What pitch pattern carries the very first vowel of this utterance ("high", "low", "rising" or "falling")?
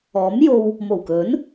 rising